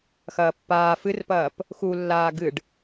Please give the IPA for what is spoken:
xɐːpːaː fɨrpɐːp | xulːaː ɡɨɖ

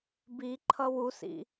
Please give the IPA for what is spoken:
bi ǃʰʌwusḭ

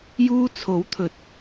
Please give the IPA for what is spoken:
juː˧t͡sʰo˨˥wt̪ʰɵ˨˥t̚

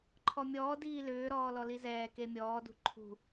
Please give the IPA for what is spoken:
ǃʰɔmʲɔː diːlʏːɾɔː lɔlizɛː kemʲɔːdṳ ǃʰṳ

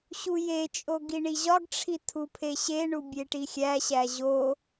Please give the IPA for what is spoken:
ɕujet͡ʃʼo ɡiɳiʑɒɡʈ͡ʂʰi tʰupʰeɕeɳu bʲeʈixʲæɕæ ʑo

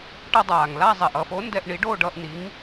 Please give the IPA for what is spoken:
ʈʌ˧dˤaː˩ŋla˥˧ zˤɛ˩ʔʌ˥˧fo˨˥ ndɛ˧ʔ ɳi˨˥ɖoː˥˧ɖʌː˧ʔ ni˨˥ŋ

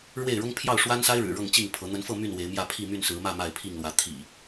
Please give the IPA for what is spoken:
ɻwe˥˨ɪ̯ɻʊ˦ŋ pʰjɑ˥˨ʊ̯ʂwa˦nsa˦ɪ̯ɻɻ̩˨˩ ɻɤ˥˨ŋt͡ɕi˥˨ŋpʰɤ˨˦ n̪ə˨˦nfɤ˥˨ my˥˨n we˨˦ɪ̯mjä˥˨ pʰi˥˨my˥˨nsɹ̩˨˦mä˥˨ ma˥˨ɪ̯pʰi˥˨ŋlwä˨˦ t̪ʰḭ˨˩

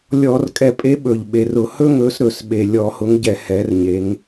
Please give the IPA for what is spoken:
lʲɔ˧˩˧r kʼɛ˧˩˧pʼe˨˦ ɓɵ˨˩ʎ ɓe˨˩rʊ˧˩˧hɵ˥ ŋɵ˨˦sɾɵ˧˩˧sɓe˨˩ lʲɔ˧˩˧hʊ˨˦ŋɟɛ˧˩˧ hɛ˨˦rɲe˨˦ŋ

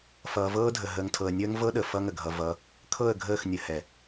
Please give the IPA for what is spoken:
fʌː˨vɤː˦dʱə˨ ɦəː˨ŋtʰɤ˨ə̯nʲəː˦ŋ vɤ˦ɗə˨ fʌ˦ŋə˨ɡʱʌ˨ vʌ˨˦ | kʰɤ˦˨ə̯ɡʱəː˦˨xnʲə˨hɛ˨

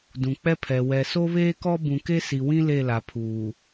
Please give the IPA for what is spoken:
dũ˨k͡pɛ˦pʰɛ˨ wɛ˨so˦βeː˦kɔ˦ bũ˨ke˦si˨wĩ˦ le˦˨la˨pʰuː˨

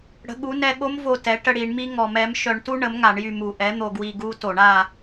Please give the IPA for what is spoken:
ɽə̤˩˥ɠu˩˥nɛ˦˨ ɠo˦˥m vo˦˨tɛ˩˥ ʈə˦˨ɽi˧˩˧ɳmi˦˥ ŋɔ˧˩˧mɛ˩˥m ʃœ˧˩˧ɳtu˦˥ ɳə˩˥m ŋa˧˩˧ɳjy˦˨mu˧˩˧ ʔɛ˩˥ n̪o˦˨ɡwi˦˨ ɡu˦˥to˧˩˧ɳ a˦˨

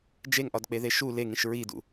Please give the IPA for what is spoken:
d͡ʒeŋʔɒdk͡peðe ʃu leŋĩʃ ɹidṵ

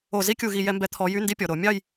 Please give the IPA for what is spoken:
o˧˩˧zi˦˥ kʲu˧˩˧ɣi˧˩˧jɛ˨˦mbɛ˨˦ t̪ʰɔ˨˦jy˧˥˧ ndi˦˥pʲɔ˩˧˩ ɾo˧˩˧mʲɑ˥˧j

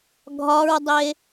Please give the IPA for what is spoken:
ɡʱɒɹdˤe

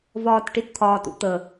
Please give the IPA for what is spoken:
vɒː˨tʈi˨t t̪ʰɒː˨tṵ˨t̪ə˨

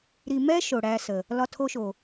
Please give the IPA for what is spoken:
ɾi˨mɛ˦ ʃo˨ɽæ˦sə˨ | lɒ˦tʰo˦ʃo˨

